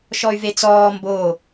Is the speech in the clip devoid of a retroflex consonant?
yes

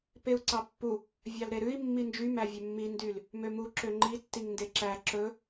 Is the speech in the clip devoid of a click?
no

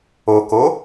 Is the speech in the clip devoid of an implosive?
yes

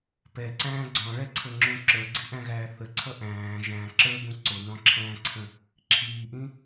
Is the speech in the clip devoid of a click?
no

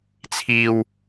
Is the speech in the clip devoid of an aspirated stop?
no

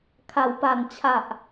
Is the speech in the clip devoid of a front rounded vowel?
yes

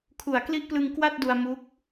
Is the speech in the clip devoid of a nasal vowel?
yes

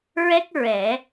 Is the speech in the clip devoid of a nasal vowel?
yes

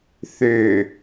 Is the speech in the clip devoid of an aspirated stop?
yes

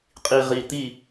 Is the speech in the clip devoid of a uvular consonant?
no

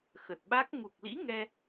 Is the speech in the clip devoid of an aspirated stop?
yes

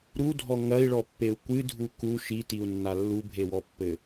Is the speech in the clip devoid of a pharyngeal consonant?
yes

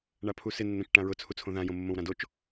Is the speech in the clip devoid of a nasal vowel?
no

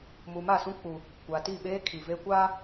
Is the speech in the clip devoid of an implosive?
no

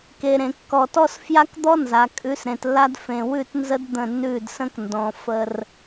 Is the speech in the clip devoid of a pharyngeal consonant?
yes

